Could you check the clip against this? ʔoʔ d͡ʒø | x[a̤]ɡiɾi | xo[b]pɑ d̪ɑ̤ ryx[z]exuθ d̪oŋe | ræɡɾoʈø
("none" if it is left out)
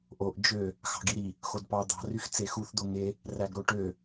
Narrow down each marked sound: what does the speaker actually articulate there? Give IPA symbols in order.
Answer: ɑ̤, d, t͡s

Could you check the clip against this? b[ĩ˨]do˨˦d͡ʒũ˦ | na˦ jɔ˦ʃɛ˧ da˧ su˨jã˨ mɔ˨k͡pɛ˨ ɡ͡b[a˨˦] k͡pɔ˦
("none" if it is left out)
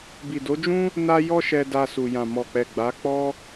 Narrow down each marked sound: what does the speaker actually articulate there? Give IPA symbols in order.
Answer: i˨, a˨˦

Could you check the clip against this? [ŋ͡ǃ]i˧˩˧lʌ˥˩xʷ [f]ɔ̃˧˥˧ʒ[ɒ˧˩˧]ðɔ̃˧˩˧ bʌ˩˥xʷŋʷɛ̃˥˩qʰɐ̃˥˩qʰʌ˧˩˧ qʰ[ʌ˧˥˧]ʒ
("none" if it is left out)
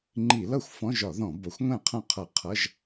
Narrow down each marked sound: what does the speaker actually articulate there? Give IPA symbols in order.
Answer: ŋ͡ǃ, f, ɒ˧˩˧, ʌ˧˥˧

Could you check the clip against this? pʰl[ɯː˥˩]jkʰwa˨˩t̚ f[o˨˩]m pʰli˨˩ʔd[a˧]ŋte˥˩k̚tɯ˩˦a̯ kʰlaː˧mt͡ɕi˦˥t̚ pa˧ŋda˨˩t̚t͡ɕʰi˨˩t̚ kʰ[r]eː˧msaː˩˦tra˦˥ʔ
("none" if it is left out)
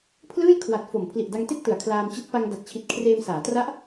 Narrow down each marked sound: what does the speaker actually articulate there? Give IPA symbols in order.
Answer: ɯː˥˩, o˨˩, a˧, r

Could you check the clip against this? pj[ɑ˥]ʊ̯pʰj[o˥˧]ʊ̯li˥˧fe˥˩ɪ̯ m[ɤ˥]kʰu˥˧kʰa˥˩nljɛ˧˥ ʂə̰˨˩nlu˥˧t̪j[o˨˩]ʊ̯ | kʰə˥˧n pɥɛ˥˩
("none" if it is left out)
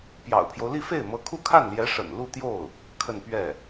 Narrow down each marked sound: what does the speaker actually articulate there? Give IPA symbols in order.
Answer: ɑ̰˨˩, o˦, ɤ˧˥, o˥˩

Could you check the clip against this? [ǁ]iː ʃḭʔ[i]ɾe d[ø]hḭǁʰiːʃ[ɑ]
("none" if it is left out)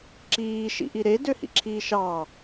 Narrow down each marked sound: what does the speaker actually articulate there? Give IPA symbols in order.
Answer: ǁ, i, ø, ɑ

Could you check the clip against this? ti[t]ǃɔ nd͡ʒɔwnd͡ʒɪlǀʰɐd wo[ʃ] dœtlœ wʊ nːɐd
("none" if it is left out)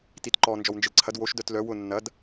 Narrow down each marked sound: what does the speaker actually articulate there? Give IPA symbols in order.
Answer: t, ʃ

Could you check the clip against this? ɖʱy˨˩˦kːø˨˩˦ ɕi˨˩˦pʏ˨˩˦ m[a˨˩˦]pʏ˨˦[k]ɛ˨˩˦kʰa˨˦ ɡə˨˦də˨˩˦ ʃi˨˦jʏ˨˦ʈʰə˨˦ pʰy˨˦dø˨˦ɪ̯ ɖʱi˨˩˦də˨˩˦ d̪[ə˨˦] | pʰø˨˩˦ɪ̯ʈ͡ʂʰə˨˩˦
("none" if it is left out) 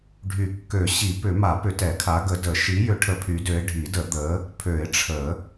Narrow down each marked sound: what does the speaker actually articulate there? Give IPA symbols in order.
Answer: a˨˩˦, t, ə˨˦

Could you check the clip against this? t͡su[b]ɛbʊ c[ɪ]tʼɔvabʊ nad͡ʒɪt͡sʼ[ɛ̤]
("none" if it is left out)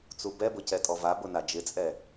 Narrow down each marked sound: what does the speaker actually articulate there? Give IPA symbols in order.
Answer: b, ɛ, ɛ

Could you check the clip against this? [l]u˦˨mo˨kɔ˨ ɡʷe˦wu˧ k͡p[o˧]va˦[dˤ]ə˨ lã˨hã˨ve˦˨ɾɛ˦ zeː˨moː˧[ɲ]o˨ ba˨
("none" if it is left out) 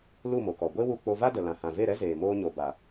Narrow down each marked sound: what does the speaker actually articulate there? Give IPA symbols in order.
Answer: l, o˧, d, ɲ

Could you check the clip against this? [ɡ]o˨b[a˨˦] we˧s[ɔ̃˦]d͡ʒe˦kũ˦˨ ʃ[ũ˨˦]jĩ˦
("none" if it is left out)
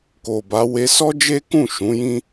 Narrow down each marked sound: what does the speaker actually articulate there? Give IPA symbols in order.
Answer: k, a˨˦, ɔ˦, ũ˨˦

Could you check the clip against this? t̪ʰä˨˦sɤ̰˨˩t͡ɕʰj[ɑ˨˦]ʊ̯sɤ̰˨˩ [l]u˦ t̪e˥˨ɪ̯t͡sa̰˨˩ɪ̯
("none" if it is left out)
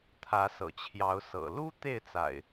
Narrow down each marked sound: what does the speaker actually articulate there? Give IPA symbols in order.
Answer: ɑ˨˦, l

